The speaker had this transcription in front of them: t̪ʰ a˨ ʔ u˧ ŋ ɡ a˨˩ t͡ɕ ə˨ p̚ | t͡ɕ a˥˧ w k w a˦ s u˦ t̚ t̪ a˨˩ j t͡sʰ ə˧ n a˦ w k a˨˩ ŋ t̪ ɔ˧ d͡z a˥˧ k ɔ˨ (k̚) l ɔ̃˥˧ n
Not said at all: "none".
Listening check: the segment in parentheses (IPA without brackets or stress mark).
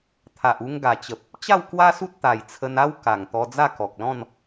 k̚